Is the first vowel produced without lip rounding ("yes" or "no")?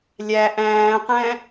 yes